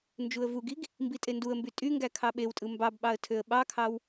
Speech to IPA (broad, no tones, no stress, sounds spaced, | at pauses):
n d͡ʒ u ə̯ v u ɡ i ɡ | m b i tʼ e n d u ə̯ m b y tʼ y ŋ ɡ æ kʰ ɑ ɓ e w tʼ ɯ m b ɑ b ɓ ɑ ə̯ tʰ ø ə̯ ɓ ɑ kʰ ɑ w